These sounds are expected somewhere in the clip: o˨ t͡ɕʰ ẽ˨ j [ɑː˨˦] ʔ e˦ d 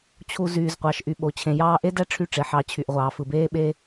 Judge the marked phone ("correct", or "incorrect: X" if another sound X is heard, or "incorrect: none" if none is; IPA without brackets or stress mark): incorrect: ɑː˧